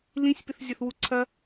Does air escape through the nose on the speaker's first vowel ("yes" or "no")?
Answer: yes